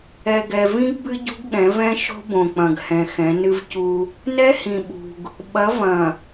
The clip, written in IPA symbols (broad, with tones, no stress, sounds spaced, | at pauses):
ɛ˨ ɡ ɛ˨ v ĩ˦ ɡ b ɨ˦ ɟ ṳ˦ ɡ ɠ ɛ̃˨˦ v ɛ̃˦ ʃ o̤˦ b õ˨ k͡p ɐ̃˨ ɡ h ɛ̃˨ x ɛ̃˨˦ n ɨ˦ v c u˦ | n ɛ˦ h ĩ˨ ɓ ṳ˨ ɡ | ɓ ɐ˨˦ v ɐ̃˨